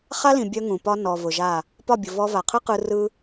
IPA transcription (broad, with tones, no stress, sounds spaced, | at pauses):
χ a˦ l ĩ˨ bʲ œ˦ ŋ ũ˨ p ɒ˦ n ɔ˨ v ʊ˨ ʒ a˦˨ | p ɒ˦˨ bʲ ʊ˨ v ɔ˧ v a˨ qʰ ɯ˦ q ɯ˧ r ɯ˦